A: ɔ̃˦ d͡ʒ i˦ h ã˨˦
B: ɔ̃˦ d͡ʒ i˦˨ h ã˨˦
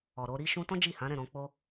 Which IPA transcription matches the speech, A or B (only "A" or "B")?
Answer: B